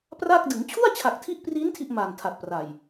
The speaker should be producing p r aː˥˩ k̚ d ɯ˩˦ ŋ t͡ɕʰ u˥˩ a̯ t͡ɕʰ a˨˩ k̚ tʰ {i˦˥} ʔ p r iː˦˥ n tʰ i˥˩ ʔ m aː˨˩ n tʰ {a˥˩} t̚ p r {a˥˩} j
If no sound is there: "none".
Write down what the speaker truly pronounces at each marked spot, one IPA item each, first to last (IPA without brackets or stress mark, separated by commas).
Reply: i˦˥, a˨˩, a˨˩